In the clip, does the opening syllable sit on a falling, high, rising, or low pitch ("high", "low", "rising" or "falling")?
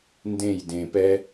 falling